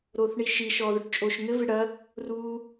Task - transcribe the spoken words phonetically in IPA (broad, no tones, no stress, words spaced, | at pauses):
ɾoːθɳiʃi ʃɔːðoʈt͡ʃʼoːʃŋɘ vɨɽɐ | ru